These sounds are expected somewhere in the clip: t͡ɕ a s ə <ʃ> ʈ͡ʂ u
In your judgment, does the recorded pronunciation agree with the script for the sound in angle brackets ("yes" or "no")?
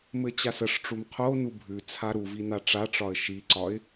no